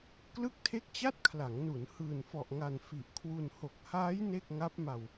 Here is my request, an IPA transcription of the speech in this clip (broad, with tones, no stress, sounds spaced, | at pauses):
k l ɯ˥˩ k̚ tʰ e˥˩ k̚ t͡ɕ a˥˩ t̚ kʰ l a˩˦ ŋ n u˩˦ n h ɯː˨˩ n f ɔ˨˩ ʔ ŋ a˨˩ n f i˨˩ ʔ kʰ w u˧ n h o˨˩ k̚ h aː˦˥ j n e˥˩ k̚ ŋ a˦˥ p̚ m a˧ w